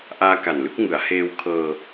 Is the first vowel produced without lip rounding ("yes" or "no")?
yes